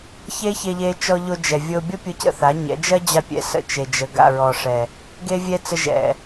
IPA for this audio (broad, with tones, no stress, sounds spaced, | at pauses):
ç e˦ ç e˧ ʎ e˧ t͡ʃ ɔ˧ ʎ o˧ d͡ʒ ɛ˨ vʲ o˧ bʲ ɔ˦ pʲ o˧ c ə̰˦˨ θ a˨˦ ɲ ɛ̰˨˦ d͡ʒ ɜ˦ d͡ʑ a˧ pʲ ɛ̰˧ s ə̰˧ t͡ʃ e˨ d͡ʒ ə˨ ɡ a̰˦˨ ɹ ɔ˨ ʂ ɛ˨ | ɡ e˦ vʲ ɛ˦ t͡s ə˧ ʒ ɛ̰˨